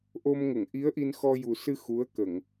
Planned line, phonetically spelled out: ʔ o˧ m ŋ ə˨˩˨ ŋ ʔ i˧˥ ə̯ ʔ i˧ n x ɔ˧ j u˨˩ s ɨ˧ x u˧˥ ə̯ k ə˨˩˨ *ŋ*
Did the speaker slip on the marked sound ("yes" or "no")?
no